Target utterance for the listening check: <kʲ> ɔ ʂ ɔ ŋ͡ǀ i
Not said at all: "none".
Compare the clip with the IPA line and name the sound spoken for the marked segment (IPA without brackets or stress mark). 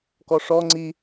k